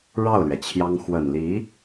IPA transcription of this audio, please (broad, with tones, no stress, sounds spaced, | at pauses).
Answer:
ɻ ɑ˥˩ ʊ̯ l ɥ ɛ˩ t͡ɕʰ j ɑ˥ ŋ x w ə˨˩ n l i˧˥